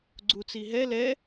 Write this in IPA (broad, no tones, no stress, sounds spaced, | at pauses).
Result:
ɡ͡ǀ u t͡s i ɦ ɛ l ɛ